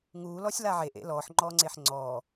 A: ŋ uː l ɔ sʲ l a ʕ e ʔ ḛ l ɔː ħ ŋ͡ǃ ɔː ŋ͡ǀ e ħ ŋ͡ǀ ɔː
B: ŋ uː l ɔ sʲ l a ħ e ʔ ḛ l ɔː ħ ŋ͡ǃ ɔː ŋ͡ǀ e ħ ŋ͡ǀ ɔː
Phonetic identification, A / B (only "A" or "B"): A